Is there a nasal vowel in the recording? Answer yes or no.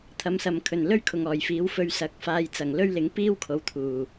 no